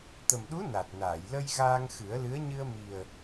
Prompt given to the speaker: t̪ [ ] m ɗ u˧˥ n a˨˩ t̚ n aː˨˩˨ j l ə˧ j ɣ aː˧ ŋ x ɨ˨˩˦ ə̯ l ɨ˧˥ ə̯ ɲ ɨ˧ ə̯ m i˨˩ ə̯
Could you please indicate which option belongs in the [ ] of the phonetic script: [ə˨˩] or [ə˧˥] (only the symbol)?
ə˨˩